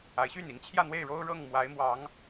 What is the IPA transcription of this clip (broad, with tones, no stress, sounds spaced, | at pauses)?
a˨˦ ɪ̯ ɕ y˥˨ n i˨˦ ŋ t͡ɕʰ j ä˥˨ n̪ w e˥˨ ɪ̯ ɻ o˦ ʊ̯ ɻ ɤ˥˨ ŋ m w a˨˦ ɪ̯ m w ɑ˨˦ ŋ